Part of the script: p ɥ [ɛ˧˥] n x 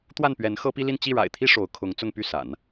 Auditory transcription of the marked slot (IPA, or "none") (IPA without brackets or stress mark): ɛ˧˥